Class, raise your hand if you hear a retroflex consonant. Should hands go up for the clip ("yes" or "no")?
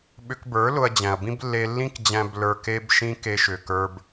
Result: no